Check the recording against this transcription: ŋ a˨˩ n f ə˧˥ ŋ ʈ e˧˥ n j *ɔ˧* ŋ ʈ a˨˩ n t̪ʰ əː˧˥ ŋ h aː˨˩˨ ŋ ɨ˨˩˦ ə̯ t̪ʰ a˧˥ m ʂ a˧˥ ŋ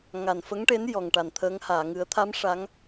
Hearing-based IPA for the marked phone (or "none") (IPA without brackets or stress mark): ɔ˨˩